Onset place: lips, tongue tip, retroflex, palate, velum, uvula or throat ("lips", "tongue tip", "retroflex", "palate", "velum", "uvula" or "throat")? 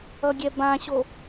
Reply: velum